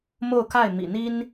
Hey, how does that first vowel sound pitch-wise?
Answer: falling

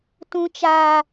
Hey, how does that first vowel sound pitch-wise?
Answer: high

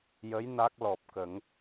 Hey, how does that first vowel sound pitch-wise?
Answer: rising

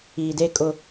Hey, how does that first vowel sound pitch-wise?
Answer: low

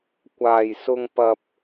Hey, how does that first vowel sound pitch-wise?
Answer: low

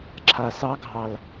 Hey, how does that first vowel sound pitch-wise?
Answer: low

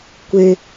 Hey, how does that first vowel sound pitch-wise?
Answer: high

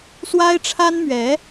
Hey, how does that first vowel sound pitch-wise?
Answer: high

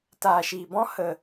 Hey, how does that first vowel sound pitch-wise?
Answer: low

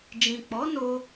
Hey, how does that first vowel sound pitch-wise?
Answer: low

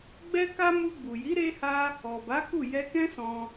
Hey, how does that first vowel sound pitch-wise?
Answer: high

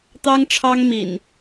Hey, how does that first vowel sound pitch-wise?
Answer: high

